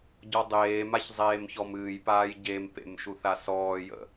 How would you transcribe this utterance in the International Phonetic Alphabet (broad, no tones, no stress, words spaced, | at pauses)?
ɟɔdˤeːmaç zˤeːmçɔmɨːjpaːj ɟempḛm ʃuθasɔːjə̰